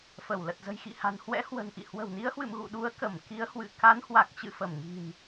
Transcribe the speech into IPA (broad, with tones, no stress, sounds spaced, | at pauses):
f ə˧˩ w l ə˨˩ t̚ z ə̤˨˩ j x ḭ˧˨ h a̤˨˩ n h w ɛ̰˧˥ h w ə̤˨˩ n ʔ ḭ˧˨ h w ə̤˨˩ w n i˨˦ ə̯ h w ɨ̰˧˨ m ɣ ṵ˧˨ ɗ u˨˦ ə̯ k ə˧˩ m k i˨˦ ə̯ h w ɨ̰˧˨ k a˨˦ n h w a˨˩ k̚ t͡ɕ ɨ̰˧˨ f ə˧˩ m ŋ i̤˨˩ n